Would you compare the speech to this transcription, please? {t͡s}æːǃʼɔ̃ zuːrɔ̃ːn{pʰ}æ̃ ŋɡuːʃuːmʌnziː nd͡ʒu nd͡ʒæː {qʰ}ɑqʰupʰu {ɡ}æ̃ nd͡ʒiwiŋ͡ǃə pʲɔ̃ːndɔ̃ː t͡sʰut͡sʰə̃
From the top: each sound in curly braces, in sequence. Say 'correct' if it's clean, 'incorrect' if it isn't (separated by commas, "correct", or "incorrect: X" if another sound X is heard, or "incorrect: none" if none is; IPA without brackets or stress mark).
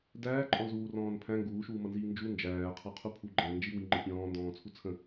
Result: incorrect: d, correct, correct, incorrect: ɡ͡ǃ